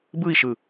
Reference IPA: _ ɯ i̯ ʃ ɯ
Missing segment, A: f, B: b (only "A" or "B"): B